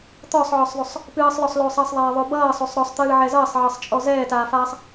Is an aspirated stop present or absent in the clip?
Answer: absent